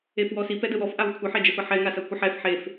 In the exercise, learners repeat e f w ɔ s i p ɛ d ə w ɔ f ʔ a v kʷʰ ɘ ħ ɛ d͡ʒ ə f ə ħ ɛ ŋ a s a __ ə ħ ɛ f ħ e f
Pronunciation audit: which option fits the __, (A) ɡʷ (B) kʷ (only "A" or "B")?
B